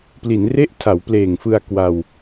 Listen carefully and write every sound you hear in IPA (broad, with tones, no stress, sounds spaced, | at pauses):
p l i˩˦ n r e˥˩ ʔ tʰ a˩˦ w p l eː˨˩ ŋ f ɯ˧ a̯ k w a˧ w